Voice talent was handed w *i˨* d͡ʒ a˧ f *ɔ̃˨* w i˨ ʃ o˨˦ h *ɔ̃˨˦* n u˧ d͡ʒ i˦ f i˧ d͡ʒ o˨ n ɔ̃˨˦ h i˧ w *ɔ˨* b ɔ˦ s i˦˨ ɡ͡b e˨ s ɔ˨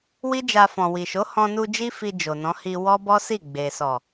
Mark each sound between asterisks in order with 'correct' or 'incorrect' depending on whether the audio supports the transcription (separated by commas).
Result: incorrect, correct, incorrect, incorrect